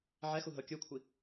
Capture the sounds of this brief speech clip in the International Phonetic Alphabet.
ʕ ɛ x u ɦ ɤ kʲ ɯ kʷʰ i

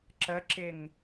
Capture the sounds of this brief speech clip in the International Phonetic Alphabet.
ǁ ə ǁ ɪ ŋ

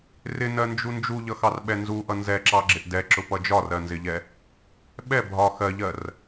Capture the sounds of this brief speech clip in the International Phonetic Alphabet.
r ɪ n ɜ n d͡ʒ u n d͡ʒ u ʎ ʌ x ɑ r ɓ ɛ n z u ʔ ʌ n z ɛ ǁ ɑ ɡ͡ǁ ɪ ʔ d ɛ ǁ ʊ p ʌ d͡ʒ ɒ r ɜ n z ɪ ʎ ɛ | ɓ ɛ bʱ ɒ x ɜ ʎ ɜ r

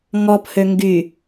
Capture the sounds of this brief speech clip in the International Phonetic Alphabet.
ŋ ɔ p h ø ŋ ɡ y

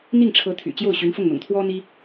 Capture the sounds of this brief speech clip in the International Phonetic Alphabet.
n̪ i˥˩ ŋ ʈ͡ʂʰ ɤ˧˥ t̪ʰ y̰˨˩ t͡ɕ j o˥˩ ʊ̯ ɕ y˧˥ n f ʊ˥˩ ŋ n̪ ʊ̰˨˩ ŋ t̪ʰ w ɔ˥ n̪ i˥

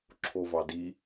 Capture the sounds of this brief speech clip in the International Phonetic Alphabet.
ǁʰ o v ɑ d i

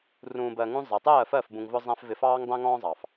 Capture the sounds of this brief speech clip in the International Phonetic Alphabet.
r ũː˧ b ɜ˧ ŋ ũ˦ zˤ ɛ˨ tˤ ɜː˦˨ f ɜ˦˨ f b ũ˧ ŋ v ʊ˦ zˤ æ̃˦ f v ɪ˧ f ɑː˦ ŋ dˤ æ̃˦ ŋ ɔ̃ː˦ zˤ ɑ˨ f

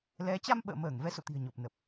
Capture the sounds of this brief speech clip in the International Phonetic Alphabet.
l ɛ˨˦ t͡ɕ a˧ m ɓ ə̰ː˧˨ m əː˧˩ ŋ v ɛ˨˦ s o̰˧˨ t̪ i̤˨˩ ə̯ ɲ o˨˩ p̚ n ə˨˩ p̚

